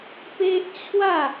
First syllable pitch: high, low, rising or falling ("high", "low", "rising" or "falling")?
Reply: high